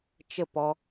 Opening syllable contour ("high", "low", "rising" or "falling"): falling